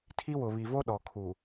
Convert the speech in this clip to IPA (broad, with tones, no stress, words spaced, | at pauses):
tʰi˦wʊ˨ βi˨vo˦ ɗɔ˨kʰu˨